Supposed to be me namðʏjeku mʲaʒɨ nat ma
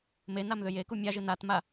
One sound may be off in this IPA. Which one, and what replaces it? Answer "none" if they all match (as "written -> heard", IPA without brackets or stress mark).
none